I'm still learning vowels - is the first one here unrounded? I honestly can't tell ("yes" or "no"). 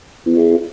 no